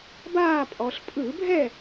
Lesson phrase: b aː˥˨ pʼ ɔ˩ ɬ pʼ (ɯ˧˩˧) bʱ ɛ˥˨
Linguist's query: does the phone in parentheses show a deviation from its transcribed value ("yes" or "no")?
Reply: no